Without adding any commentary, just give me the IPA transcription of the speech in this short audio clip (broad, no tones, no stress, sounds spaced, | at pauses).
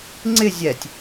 ŋ͡ǀ ɪ zʲ ɛ tʲ